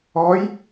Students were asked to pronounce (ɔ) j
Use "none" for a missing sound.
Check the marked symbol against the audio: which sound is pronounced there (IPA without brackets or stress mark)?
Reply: ɔ